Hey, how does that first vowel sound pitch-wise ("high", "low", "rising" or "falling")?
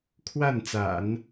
falling